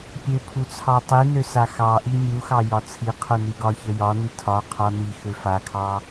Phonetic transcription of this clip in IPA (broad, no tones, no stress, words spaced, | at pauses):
pʲø pʰut͡sʰɑtˤinø saxɑʔi mʲuxɑ jɒt͡sʰiqʰu niɡɒçə jɒni tʰɒ qʰɒ nixø fakʰɑ